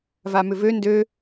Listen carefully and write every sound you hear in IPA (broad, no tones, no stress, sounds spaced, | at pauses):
v a m ʏ v ø n d ø